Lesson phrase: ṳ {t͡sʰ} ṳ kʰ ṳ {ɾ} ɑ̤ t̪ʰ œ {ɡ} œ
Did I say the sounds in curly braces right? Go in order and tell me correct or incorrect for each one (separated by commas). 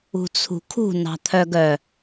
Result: correct, incorrect, correct